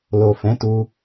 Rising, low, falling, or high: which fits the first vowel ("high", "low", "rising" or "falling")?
low